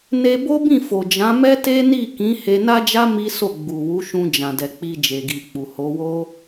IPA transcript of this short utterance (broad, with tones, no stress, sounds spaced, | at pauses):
n e˧ b o˦ b ĩ˦˨ f o˨ d͡ʒ ã˨˦ m ɛ˦ t e˦ n i˦˨ k ĩ˨˦ h e˧ n a˦ d͡ʒ a˦ m i˦ s o˦˨ ɡ͡b u˨ w u˨˦ ʃ ũ˧ d͡ʒ ã˨ d ɛ˨ k͡p i˧ d͡ʒ e˨ ɡ i˨ k͡p u˨ h o˨˦ w o˦